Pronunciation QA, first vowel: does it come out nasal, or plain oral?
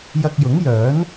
oral